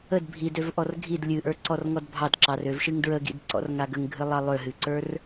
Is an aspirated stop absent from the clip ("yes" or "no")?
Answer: yes